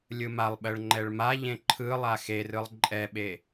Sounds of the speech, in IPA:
lʲ ɯ m a lˠ ɓ ɜ ɭ ŋ͡ǃ ɛ ɭ m a ʎ ẽ ǃʰ ɯ lˠ a x e r ɯ lˠ ǃʼ ɛ ɓ e

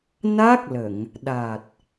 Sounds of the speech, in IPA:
n a˦˥ k̚ l ə˨˩˨ ŋ | ɗ a˨˩ t̚

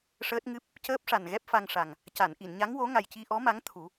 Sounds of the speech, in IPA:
ʂ əː˦˥ t̚ ŋ ɨ˦˥ p̚ | c əː˦˥ p̚ ʂ a˨˩ n ɣ ɛ˦˥ p̚ f a˧ ŋ ʂ a˨˩ ŋ | c a˨˩˨ n ʔ i˨˩˨ n ɲ a˧˥ ŋ w o˧˥ ŋ a˨˩ j c i˧ ʔ ɔ˧˥ m a˧˥ ŋ t̪ʰ u˨˩˦

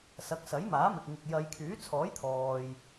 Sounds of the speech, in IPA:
s ɐ˨˥ k̚ s ɐ˨˥ j m aː˨˥ m ɪ˨ k̚ ŋ ɪ˨ k̚ j ɐ˨˧ j kʰ yː˨˥ t͡sʰ ɔː˨˥ j t̪ʰ ɔː˨ j

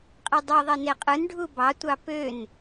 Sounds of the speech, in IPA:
qʼ i dˤ o ðˤ i n e qʼ ɯ n ɖʱ u b ɑ tʷ ɑ p ø n

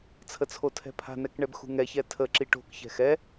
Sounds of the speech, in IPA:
t͡sʰ ə t͡sʰ o tʰ ɛ̤ pʰ a̤ n ɛ k ɳ ɛ b x ṳ ŋ ɛ ç ɛ tʰ ə ǁ i ʈ o̤ k ç ɛ̤ x ɛ

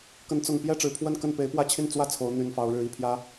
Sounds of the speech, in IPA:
k ə˨˦ n t͡s ʊ˨˩ ŋ p j ɛ˥˨ ʈ͡ʂ ɻ̩˨˩ pʰ w ə˥˨ n k ə˥˨ n p e˨˦ ɪ̯ p w ä˥˨ t͡ɕʰ i˥˨ n t͡s w ä˥˨ t͡sʰ o˨˦ ʊ̯ n̪ y˨˩ n f ɑ˨˦ ʊ̯ ɻ ɻ̩˨˦ i˨˩ pʰ j ä˨˦

